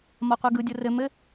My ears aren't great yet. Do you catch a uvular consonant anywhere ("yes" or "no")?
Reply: yes